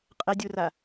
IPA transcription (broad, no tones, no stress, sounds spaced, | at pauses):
qʼ ɛ dʲ u r a